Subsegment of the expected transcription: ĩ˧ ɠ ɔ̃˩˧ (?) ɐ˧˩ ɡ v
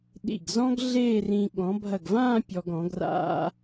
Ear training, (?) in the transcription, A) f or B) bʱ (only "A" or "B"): B